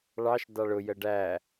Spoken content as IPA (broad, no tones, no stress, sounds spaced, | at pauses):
ɭ ɑ ʃ d ɑ ɭ ʊ j ə ɖ æ